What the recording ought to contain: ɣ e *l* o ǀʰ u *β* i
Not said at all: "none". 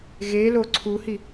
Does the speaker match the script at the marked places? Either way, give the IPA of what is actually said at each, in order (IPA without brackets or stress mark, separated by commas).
l, h